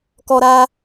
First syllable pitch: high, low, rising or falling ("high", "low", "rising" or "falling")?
high